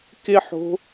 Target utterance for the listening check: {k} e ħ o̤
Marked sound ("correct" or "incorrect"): correct